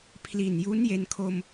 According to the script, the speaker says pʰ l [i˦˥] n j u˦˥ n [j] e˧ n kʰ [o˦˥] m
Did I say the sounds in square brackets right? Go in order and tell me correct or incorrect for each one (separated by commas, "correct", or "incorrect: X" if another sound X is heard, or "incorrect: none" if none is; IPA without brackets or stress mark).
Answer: incorrect: i˨˩, correct, incorrect: o˧